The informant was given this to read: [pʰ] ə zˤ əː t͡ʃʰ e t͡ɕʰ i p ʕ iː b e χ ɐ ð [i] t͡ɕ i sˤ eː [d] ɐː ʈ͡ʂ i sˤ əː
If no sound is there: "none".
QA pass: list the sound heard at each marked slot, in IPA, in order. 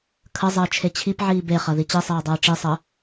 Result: kʰ, i, dˤ

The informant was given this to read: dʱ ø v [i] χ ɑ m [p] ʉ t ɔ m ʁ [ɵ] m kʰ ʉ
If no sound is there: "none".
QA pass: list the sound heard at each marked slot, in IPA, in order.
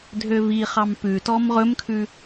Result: i, p, ɵ

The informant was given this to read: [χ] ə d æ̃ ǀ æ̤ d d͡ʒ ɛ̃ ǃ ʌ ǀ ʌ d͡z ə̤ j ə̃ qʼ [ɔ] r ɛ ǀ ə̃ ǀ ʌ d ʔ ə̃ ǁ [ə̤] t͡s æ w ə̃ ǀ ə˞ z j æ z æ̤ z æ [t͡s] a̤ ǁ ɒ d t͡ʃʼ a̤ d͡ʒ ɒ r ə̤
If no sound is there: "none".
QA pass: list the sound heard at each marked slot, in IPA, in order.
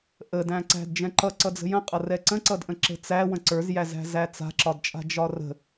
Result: ʔ, ʌ, ə̤, t͡s

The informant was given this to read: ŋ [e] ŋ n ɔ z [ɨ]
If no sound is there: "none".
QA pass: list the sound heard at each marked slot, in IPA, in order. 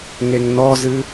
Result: e, ɨ

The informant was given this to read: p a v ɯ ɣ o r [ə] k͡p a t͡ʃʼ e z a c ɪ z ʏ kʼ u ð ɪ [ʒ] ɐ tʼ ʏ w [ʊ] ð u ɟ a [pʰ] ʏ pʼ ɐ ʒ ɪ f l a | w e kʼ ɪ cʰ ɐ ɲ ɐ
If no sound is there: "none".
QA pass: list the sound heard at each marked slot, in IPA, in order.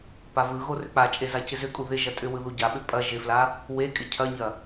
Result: ʏ, ʒ, ɯ, ɓ

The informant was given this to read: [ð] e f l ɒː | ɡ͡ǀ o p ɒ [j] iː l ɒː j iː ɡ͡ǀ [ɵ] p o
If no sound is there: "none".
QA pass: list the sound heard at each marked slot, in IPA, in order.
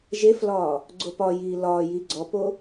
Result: ʒ, j, ɔ

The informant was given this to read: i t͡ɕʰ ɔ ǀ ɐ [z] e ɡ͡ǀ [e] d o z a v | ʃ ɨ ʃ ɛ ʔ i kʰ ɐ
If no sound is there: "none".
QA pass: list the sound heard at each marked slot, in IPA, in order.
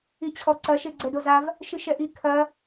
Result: ʃ, ɛ

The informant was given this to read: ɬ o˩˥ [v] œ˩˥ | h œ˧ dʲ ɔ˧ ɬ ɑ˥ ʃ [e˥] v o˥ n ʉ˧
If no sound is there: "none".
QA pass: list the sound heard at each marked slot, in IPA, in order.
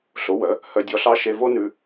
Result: w, e˧

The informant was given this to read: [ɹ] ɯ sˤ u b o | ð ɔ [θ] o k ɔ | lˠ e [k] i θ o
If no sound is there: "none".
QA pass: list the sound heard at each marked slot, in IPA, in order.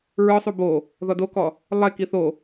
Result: ɹ, d, k

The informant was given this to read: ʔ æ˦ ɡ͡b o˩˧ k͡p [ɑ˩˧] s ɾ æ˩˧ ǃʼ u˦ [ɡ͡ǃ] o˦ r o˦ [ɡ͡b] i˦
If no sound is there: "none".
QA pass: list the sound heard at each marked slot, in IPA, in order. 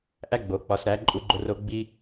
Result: ɒ˩˧, ɡ͡ǃ, ɡ͡b

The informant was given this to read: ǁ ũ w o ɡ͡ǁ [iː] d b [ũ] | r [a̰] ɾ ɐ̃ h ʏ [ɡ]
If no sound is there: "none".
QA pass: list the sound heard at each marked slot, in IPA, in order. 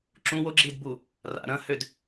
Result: iː, u, a̰, d

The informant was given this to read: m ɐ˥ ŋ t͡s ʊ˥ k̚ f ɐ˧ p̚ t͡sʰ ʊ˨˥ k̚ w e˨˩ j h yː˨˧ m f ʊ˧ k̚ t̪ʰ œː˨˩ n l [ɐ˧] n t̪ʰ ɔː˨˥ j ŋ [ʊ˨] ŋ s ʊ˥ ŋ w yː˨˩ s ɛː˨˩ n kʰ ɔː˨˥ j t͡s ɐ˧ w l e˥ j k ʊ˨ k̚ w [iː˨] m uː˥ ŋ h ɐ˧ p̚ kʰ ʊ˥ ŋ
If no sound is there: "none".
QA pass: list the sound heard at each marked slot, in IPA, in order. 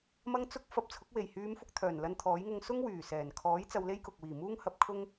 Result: ɐ˧, ʊ˧, iː˨˩

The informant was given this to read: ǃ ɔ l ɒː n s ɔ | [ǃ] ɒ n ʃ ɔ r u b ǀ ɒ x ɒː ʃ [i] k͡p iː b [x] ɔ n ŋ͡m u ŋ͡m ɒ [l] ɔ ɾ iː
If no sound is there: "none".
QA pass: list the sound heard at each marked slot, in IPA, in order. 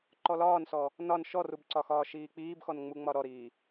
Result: n, iː, x, ɾ

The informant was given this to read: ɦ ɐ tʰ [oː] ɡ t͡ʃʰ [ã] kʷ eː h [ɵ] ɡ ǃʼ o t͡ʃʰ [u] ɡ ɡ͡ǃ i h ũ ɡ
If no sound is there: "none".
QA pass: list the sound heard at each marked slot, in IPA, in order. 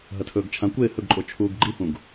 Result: ɵː, ã, ɵ, uː

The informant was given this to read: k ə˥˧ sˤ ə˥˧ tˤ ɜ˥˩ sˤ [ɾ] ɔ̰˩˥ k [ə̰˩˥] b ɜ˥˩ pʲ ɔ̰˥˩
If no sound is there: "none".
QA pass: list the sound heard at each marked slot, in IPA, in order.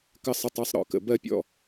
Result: ɾ, ə̰˩˥

